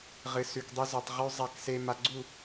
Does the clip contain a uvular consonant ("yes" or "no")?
yes